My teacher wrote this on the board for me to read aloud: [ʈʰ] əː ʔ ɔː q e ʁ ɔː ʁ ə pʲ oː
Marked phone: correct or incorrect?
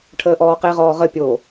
correct